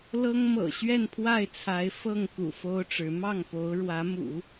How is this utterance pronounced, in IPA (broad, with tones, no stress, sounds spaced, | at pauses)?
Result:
l ɤ˥ ŋ m ɤ̰˨˩ ɕ ɥ ɛ˥˧ n pʰ w a˥˩ ɪ̯ t͡sʰ a˧˥ ɪ̯ f ɤ˥˩ ŋ k ṵ˨˩ f o˥ ʊ̯ ʈ͡ʂ ɻ̩˧˥ m ɑ˥˩ ŋ p o˧˥ ʊ̯ ɻ w ä˧˥ m ṵ˨˩˦